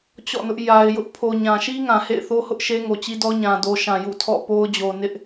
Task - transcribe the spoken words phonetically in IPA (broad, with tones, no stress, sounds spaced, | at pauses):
t͡ɕ ɔ̰˦˨ n ʊ˦ ʔ j a˨ ɪ̯ j ʊ˦ ʔ pʰ o˨ ɲ ã˨ ʃ i˦ ŋ ã˨ h ḛ˦˨ ɪ̯ θ o˦ h ʊ˦ ʔ ʃ e˦ ŋ o˨ t͡ɕ i˦ d ɔ˦ ɲ ã˨ d o˨ ʃ ã˨ j ṵ˦˨ tʰ ɔ̰˦˨ p o˦ ʊ̯ d͡ʑ o˨ n ɪ˦ ʔ